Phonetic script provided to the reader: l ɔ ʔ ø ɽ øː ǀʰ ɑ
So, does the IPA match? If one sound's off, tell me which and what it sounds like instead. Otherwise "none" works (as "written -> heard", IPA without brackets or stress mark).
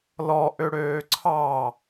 none